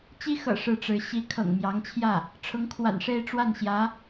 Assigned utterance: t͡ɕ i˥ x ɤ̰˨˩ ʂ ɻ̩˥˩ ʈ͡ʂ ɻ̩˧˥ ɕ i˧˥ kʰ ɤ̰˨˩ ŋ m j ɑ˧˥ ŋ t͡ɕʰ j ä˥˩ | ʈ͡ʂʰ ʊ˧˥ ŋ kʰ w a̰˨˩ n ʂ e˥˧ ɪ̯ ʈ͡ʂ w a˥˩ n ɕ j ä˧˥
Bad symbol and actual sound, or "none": none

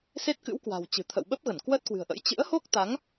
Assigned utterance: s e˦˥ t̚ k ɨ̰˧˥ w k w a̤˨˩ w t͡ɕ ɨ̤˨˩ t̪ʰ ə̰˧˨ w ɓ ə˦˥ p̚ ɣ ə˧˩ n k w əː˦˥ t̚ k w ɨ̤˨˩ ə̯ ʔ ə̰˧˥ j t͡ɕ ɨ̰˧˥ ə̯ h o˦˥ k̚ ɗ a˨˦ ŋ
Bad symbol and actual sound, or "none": ɗ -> t̪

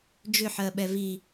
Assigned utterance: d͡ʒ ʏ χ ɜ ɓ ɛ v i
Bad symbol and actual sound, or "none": χ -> ħ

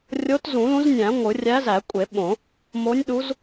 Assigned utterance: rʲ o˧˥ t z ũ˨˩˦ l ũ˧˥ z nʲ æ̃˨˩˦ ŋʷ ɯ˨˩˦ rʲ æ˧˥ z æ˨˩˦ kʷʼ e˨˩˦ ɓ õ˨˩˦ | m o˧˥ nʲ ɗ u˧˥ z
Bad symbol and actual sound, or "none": none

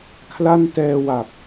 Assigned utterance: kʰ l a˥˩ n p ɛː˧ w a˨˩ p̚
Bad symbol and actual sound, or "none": p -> t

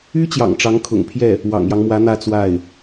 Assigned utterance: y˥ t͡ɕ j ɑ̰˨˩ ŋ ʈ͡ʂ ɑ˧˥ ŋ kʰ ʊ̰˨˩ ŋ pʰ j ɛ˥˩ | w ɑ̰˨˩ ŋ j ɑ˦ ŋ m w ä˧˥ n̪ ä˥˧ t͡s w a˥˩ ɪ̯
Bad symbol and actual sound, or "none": none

